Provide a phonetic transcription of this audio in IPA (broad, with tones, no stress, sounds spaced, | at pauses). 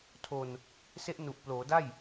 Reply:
tʰ o˧ n | s e˦˥ ʔ n u˨˩ ʔ p l oː˩˦ d a˥˩ j